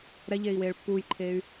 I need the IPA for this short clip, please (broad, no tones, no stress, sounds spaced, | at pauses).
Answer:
ɾ ɛ ʎ eː i̯ w eː ɭ pː uː j ǃʰ eː y̯